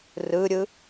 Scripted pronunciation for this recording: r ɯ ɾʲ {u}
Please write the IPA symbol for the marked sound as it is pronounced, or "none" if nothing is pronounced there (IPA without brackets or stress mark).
ɯ